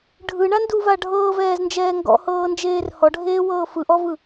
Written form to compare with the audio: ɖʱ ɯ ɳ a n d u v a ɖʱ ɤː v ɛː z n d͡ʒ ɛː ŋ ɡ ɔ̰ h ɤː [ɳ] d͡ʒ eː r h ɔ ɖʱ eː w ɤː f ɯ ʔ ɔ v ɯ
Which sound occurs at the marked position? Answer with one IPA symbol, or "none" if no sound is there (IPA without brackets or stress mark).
n